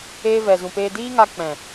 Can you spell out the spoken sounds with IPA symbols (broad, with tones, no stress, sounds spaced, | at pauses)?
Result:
eː˧ v ɛ˨ z ũ˨ p eː˧ d iː˦ ŋ a˧ k͡p ɛ̃˨